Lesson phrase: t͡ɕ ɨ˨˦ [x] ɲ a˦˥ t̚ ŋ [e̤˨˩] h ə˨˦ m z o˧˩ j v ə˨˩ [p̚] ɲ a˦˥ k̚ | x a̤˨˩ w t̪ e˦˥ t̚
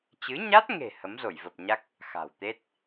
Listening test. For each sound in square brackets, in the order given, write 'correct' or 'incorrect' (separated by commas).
incorrect, correct, correct